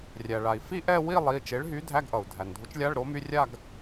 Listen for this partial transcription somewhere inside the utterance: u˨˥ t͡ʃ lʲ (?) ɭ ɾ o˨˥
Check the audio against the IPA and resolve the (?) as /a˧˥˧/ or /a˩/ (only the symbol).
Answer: a˧˥˧